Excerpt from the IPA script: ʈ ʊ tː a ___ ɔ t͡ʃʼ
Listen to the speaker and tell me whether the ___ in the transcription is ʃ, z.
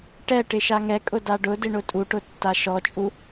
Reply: ʃ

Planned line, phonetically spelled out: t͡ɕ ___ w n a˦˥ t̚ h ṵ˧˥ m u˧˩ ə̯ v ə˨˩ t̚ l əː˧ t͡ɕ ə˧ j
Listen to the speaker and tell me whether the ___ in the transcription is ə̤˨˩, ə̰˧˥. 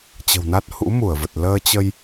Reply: ə̤˨˩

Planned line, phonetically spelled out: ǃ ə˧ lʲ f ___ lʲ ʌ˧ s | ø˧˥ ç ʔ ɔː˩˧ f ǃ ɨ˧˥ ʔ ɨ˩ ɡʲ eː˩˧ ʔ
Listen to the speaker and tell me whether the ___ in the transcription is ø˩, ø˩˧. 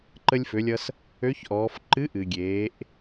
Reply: ø˩˧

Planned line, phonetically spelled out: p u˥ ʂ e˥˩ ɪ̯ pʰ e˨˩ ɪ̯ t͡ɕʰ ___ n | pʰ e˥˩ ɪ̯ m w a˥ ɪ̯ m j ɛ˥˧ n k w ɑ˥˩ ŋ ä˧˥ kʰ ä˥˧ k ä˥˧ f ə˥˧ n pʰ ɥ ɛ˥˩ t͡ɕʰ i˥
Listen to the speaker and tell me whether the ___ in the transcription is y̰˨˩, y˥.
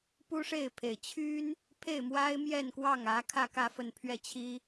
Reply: y˥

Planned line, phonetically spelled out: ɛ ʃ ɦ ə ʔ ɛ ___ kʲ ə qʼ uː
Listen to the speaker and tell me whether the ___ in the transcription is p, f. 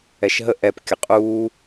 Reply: p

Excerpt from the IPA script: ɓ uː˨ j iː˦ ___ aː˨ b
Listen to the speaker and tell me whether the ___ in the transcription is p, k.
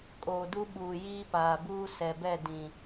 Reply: p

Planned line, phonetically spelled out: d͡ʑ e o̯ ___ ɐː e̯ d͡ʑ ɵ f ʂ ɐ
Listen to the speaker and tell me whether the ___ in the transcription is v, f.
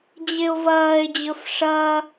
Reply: v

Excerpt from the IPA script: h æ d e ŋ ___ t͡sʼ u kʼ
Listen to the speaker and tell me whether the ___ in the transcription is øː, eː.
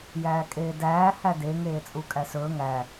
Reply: eː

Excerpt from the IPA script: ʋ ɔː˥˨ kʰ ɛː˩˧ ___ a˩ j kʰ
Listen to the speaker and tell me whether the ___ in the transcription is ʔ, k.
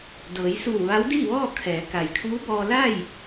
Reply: k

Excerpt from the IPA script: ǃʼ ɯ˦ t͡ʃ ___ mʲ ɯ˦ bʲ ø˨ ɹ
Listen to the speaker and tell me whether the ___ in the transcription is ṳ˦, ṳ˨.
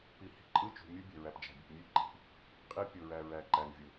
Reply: ṳ˨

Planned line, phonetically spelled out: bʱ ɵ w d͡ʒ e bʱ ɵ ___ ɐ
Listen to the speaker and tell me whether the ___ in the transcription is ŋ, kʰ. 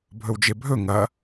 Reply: ŋ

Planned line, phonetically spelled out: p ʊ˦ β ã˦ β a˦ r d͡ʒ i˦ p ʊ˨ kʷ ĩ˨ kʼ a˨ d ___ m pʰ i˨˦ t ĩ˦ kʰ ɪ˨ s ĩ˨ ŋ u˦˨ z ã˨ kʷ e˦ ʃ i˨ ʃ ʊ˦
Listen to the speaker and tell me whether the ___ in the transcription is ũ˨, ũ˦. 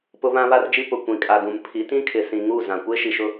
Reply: ũ˨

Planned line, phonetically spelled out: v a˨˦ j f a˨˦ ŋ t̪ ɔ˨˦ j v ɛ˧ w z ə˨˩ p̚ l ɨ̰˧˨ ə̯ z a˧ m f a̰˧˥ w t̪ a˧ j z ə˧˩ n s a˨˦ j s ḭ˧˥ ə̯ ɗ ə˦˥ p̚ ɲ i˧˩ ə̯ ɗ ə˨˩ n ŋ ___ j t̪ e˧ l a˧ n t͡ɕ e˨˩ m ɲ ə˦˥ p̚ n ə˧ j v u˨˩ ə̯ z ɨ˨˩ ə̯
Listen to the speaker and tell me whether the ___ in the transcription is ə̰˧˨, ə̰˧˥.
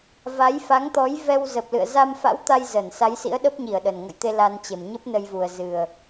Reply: ə̰˧˨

